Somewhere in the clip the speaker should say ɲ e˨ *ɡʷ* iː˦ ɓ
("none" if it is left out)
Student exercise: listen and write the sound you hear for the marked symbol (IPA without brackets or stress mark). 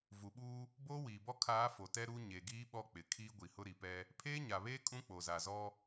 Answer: ɡ